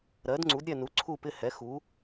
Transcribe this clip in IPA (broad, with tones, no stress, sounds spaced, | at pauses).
ɾ ɜ˩˥ d ŋ͡ǀ u˩˥ d ɾʲ ɛ˦˨ n u˩˥ ǀʰ u˦˨ p ɪ˦˨ h ɛ˩˥ x u˩˥